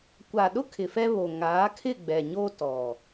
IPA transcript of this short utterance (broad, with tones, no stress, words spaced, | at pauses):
kʷa˨ɗʊ˦ kʰɪ˨fɛ˦βo˨ ŋaː˨˦kʰɪ˦˨ɡ͡bɛ˨ ɲo˦tɔ˨